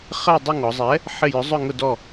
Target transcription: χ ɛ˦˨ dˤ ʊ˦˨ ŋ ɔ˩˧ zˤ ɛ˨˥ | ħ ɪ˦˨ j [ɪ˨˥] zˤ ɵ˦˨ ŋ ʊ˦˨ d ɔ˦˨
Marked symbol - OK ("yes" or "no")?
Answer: no